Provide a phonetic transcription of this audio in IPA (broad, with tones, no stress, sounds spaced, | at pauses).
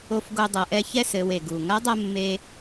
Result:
o˧ f ɡ o˧ dˤ ɐ˩˧ ʔ ɛ˧ ç ɛ˥ s ɘ˩˧ w e˩ ɡ u˩ ŋ ɐ˧˥ dˤ ɐ˧ mː e˧